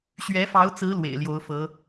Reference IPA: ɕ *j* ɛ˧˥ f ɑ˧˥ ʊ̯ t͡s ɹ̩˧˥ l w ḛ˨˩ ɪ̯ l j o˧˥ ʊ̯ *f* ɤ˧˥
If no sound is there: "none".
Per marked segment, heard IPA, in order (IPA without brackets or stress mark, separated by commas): ɥ, f